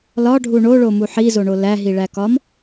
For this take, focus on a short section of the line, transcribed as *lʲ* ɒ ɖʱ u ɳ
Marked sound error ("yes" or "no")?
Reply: yes